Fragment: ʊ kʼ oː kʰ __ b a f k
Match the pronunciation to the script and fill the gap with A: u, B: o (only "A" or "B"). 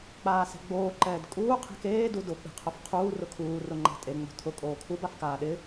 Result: A